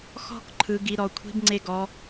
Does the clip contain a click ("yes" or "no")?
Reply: yes